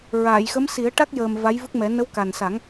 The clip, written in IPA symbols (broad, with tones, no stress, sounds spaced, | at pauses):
ɹ a˨˩˨ j x ə˧˥ m s i˨˩˦ ə̯ ʈ a˦˥ k̚ j əː˨˩ m v a˧˥ j v ɨ˦˥ k̚ m ɛ˨˩˦ n ə˧˥ w k a˨˩ n s a˨˩˦ ŋ